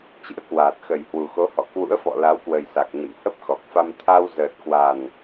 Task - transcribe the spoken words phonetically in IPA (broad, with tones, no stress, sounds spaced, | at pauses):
t͡ɕ ɨ̰˧˥ ə̯ k w aː˨˩ t̚ x ə˨˩ j h w u˨˩ x o˨˦ h ɔ̰˧˨ k w ṵ˧˥ ə̯ f ɔ̰˧˨ l a˨˦ w k w ə˨˩ j s a˨˩ k̚ ɲ ə̰˧˨ m h ə˦˥ p̚ x ɔ˨˩ k̚ f a˧ m t̪ʰ a˧ w z əː˨˩ t̚ k w a˨˩ n